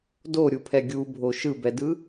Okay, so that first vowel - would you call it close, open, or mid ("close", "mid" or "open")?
mid